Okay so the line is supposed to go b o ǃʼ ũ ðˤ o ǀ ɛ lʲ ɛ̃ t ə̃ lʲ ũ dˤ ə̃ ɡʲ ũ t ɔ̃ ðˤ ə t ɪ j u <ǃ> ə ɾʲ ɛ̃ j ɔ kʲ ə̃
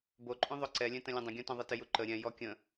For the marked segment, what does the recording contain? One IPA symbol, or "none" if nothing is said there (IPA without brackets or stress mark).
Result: ǃ